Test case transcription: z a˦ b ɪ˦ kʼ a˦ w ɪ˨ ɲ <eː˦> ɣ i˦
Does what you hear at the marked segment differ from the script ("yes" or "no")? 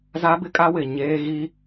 no